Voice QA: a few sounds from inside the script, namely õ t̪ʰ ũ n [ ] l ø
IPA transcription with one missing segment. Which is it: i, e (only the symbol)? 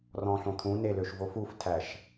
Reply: e